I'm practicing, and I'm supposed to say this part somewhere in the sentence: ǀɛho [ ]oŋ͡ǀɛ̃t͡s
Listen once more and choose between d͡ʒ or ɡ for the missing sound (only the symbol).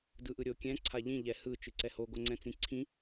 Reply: ɡ